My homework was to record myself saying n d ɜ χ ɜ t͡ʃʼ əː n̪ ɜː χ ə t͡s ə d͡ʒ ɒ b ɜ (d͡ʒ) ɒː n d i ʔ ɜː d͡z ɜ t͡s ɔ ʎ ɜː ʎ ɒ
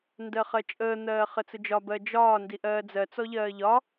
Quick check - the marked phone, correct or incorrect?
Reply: correct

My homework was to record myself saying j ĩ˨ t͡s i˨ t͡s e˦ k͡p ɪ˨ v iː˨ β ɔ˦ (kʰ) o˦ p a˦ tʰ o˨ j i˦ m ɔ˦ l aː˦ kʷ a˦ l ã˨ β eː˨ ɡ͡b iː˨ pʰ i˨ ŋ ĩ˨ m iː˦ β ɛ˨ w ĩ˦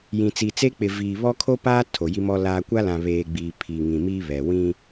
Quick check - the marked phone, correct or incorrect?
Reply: correct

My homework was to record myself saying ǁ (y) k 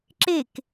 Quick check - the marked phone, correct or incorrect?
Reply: incorrect: e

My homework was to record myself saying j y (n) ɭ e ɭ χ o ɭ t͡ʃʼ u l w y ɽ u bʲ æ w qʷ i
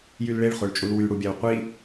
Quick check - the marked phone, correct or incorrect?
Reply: incorrect: l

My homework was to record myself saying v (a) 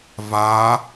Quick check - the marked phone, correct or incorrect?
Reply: correct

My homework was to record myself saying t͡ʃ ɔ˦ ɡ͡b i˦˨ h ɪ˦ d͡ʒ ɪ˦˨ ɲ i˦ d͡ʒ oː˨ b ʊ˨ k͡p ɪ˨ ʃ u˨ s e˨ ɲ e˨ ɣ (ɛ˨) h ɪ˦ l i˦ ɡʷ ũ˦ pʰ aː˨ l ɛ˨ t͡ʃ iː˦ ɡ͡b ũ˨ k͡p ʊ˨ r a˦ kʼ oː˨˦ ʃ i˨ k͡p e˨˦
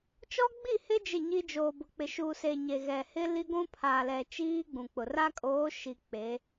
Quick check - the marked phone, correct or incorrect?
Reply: correct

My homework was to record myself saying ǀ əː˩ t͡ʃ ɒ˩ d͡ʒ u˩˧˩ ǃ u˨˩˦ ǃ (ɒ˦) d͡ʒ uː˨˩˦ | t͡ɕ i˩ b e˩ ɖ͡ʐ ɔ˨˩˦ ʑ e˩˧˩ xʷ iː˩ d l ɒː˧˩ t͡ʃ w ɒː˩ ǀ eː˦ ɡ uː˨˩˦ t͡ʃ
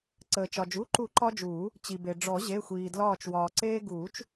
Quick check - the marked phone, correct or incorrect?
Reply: correct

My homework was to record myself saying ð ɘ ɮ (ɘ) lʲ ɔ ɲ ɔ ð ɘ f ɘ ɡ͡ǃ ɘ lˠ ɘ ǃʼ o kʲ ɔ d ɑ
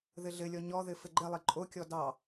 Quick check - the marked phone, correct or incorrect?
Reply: correct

